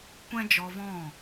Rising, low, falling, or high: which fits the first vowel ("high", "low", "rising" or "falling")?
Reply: high